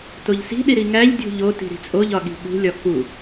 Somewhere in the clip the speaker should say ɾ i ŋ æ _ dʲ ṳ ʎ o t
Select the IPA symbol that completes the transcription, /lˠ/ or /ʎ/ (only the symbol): ʎ